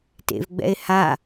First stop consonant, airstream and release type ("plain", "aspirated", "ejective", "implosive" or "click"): plain